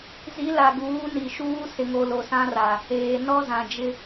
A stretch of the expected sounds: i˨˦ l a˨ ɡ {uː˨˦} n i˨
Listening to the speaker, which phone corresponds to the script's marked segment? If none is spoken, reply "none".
uː˨˦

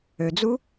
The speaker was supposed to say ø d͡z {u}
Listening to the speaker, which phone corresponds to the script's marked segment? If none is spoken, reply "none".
u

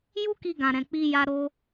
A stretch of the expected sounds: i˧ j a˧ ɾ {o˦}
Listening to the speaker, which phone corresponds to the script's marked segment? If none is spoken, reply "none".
o˧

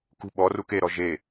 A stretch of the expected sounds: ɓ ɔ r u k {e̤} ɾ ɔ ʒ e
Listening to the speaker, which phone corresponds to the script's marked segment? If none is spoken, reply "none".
e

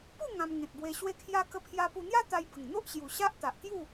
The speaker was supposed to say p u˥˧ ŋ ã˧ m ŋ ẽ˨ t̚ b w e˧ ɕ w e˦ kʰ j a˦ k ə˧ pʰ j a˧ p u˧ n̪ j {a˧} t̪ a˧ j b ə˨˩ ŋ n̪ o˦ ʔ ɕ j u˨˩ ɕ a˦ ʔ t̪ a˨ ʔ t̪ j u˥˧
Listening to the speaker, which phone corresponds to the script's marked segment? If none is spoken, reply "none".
a˦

